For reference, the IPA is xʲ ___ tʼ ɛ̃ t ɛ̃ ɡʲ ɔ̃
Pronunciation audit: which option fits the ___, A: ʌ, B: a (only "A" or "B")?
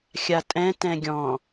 B